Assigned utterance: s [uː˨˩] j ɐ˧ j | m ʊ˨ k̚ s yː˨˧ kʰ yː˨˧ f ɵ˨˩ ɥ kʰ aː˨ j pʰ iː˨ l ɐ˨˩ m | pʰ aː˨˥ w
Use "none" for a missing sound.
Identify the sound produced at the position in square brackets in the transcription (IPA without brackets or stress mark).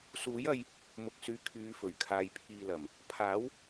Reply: uː˨˥